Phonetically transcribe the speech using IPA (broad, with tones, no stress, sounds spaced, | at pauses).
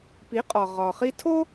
p i˩˥ qʼ ɒ˩ ʁ ɒ˩ χ i˧ tʰ o˥